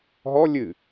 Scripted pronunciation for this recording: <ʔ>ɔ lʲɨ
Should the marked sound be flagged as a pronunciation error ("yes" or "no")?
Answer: yes